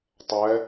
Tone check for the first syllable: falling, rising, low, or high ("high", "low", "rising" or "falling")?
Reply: rising